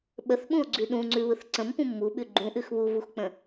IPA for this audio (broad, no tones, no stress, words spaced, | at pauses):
ɓəθɓũo̯ɡ͡ǀʉ ɗũŋ͡ǀʉβɯθ ǀə̃mpũ mːuɓʉ ɡ͡ǃũʔʉx βuvuxk͡pə̃